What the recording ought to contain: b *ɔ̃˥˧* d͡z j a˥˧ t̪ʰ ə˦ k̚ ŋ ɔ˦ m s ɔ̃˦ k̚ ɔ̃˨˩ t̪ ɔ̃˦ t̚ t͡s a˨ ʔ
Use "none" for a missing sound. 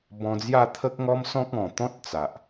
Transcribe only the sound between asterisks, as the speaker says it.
ɔ̃˧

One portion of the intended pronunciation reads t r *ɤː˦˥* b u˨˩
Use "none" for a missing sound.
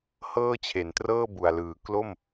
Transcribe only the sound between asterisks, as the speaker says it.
ɤː˥˩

